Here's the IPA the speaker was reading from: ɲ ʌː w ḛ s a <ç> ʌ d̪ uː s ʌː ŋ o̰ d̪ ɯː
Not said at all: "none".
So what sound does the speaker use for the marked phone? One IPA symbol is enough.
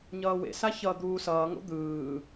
ç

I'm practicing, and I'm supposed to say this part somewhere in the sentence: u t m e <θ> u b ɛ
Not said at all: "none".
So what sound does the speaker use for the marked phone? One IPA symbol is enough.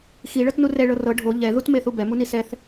θ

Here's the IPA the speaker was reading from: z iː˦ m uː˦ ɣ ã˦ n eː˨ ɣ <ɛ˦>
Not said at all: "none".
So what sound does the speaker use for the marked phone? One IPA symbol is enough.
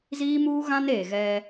ɛ˦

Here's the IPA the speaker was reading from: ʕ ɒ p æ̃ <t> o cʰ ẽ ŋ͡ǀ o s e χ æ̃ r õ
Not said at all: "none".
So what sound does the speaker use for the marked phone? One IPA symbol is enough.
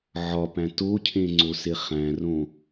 t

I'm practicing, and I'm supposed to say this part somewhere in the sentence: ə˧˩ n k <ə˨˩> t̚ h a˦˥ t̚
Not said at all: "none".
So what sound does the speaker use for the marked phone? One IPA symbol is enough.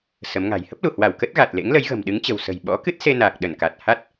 a˨˩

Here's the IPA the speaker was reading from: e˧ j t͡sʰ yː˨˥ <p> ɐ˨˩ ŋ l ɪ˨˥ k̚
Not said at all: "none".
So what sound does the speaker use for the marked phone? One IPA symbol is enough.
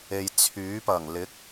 p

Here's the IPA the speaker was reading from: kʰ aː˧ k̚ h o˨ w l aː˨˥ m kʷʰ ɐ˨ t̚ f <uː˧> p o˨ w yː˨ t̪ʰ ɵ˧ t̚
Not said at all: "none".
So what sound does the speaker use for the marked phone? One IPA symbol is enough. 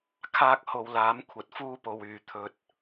uː˧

